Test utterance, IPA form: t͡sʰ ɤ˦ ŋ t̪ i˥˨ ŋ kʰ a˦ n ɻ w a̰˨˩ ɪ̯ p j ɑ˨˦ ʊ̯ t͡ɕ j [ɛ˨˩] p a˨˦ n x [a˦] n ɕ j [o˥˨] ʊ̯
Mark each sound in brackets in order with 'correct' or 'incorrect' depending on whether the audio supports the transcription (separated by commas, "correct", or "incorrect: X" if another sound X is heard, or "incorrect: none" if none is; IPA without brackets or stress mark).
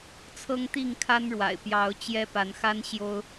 incorrect: ɛ˦, correct, incorrect: o˦